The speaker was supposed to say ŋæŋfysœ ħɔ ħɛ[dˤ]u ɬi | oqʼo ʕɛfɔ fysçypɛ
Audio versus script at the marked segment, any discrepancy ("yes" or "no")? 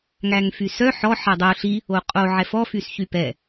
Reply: no